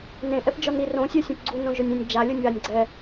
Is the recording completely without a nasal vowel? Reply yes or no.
no